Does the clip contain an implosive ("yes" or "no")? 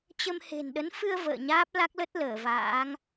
yes